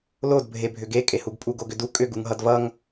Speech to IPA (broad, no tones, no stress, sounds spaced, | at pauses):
l o d bʱ e bʱ ʏ ɡ e kʼ e h u ɡ pʼ u ɡ o ɡ ʏ d u kʼ ʏ ɡ u ŋ ɦ ʌ d v ʌ ŋ